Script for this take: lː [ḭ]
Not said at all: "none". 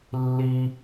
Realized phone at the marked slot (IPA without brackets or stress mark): i